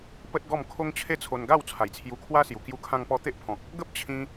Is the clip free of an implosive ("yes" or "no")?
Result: yes